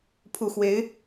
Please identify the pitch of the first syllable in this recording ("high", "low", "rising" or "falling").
low